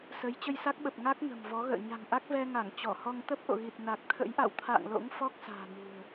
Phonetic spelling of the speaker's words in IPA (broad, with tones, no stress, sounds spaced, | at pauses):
s ə˨˦ j t͡ɕ ə˧ j s a˦˥ k̚ ɓ ə˨˩ p̚ ŋ a˦˥ k̚ ŋ ə̤˨˩ m v ɔ˨˦ ɣ ə̰ː˧˨ ɲ a̤˨˩ ŋ ʔ a˦˥ k̚ v ɛ˧ ŋ a˧˩ ŋ t͡ɕ ɔ˧˩ h ɔ˧ ŋ t̪ ə˦˥ p̚ ʔ o̰˧˨ ɣ i˨˩ t̚ n a˨˩ k̚ t̪ʰ ə̰˧˥ j ʔ a̰˧˨ w t̪ʰ a̰ː˧˨ ŋ l o̰˧˥ ŋ f ɔ˦˥ k̚ s a̤ː˨˩ n ṳ˨˩ ə̯